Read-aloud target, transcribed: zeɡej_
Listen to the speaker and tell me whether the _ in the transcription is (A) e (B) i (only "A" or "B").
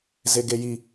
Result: B